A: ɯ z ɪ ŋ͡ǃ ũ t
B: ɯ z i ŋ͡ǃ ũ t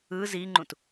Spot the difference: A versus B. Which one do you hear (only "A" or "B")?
B